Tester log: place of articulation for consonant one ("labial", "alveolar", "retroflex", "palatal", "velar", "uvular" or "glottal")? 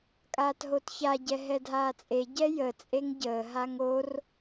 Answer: velar